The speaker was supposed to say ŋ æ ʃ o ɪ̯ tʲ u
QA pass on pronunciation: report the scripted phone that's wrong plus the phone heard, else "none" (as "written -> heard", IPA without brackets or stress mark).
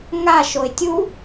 æ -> a